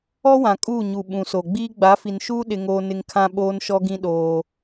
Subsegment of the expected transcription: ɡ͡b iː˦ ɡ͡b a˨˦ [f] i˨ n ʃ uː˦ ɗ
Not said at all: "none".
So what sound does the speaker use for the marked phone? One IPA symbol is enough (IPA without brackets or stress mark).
f